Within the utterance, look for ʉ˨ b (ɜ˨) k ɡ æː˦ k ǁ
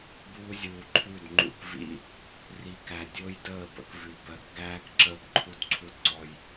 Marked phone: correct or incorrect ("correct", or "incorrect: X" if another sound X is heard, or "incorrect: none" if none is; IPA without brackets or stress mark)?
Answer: correct